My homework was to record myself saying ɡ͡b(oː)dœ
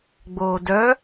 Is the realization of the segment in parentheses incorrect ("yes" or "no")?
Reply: no